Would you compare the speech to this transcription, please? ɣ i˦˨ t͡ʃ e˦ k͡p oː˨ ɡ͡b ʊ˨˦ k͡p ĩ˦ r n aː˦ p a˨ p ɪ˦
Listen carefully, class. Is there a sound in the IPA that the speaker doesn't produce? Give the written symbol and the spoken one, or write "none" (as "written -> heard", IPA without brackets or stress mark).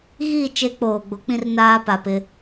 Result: none